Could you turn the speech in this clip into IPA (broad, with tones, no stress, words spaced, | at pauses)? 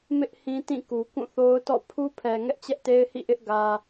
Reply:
mɪ˦ʔ hĩ˦tĩ˦˨ku˨ kũ˦˨θo˦ʊ̯tɔ̰˦˨ pʰu˦pʰɛ˨ ŋɛ˦ʔt͡ɕɛ˦ʔte˦ɪ̯hḭ˦˨ ʔɪ˦ʔ ɡä˦